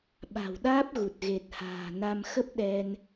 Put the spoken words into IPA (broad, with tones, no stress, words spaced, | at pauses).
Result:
ɓa̤˨˩wɗaː˦˥p̚ɣu˨˩t̚ ɣe˨˩t̚ha̤ː˨˩na˧m xə˦˥p̚ɗɛ˧n